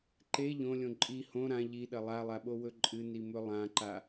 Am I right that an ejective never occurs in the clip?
no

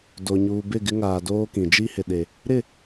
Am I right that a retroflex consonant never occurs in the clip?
yes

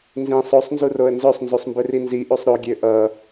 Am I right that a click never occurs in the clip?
yes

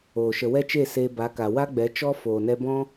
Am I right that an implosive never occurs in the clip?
yes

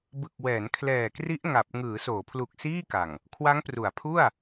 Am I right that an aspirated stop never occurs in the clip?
no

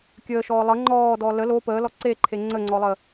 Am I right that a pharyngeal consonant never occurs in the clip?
yes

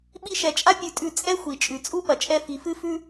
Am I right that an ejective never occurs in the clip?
no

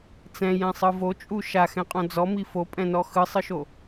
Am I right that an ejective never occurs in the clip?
no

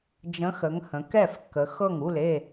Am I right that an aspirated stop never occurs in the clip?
yes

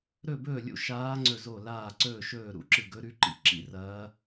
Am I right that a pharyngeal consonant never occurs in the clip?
yes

